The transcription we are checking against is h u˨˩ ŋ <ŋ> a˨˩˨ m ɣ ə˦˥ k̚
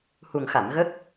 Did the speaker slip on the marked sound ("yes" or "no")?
yes